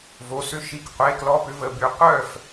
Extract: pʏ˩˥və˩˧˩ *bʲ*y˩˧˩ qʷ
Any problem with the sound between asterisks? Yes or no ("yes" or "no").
yes